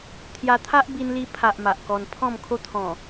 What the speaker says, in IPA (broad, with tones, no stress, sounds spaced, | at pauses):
t̪ʰ j a˧ t̪ʰ a˦ ʔ b i˧ n l i˧ pʰ a˨ ʔ m a˨ ʔ k ɔ˧ n pʰ ɔ̃˥˧ m kʰ o˦ t̪ʰ ɔ̃˨˩